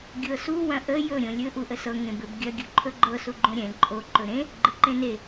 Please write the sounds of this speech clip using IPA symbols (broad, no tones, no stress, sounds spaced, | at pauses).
ɡʲ ɤ s u w ɐ̃ ʔ ə j ɵ ɾʲ õ lʲ ɵ ʔ u ʔ ə s ɤ ŋ ẽ b ɘ b ɡʲ ɐ ɡʲ ɵ ǃʰ ɵ ɡ͡ǃ ɤ s u ɡ͡ǃ õ ɾʲ ɛ̃ ǃʼ o ǃ ɵ ɾ ẽ | ɡ͡ǃ ɘ ǃ ẽ n e